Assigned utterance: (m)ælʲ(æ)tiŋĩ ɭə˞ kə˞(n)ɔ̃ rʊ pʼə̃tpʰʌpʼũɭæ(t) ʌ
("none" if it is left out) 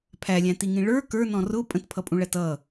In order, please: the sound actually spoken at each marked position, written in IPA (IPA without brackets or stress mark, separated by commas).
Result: pʰ, æ̃, n, t